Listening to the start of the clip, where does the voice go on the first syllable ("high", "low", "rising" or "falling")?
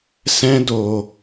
high